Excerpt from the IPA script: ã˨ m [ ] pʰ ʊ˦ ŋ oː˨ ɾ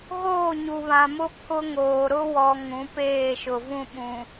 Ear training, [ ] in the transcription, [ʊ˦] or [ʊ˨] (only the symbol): ʊ˦